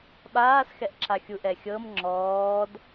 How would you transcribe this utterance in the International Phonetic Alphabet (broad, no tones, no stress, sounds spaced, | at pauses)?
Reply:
ɓ aː s x ɛ ʔ ǁ a xʲ u ʔ ɛ xʲ ɤ m ŋ͡ǁ ɔː d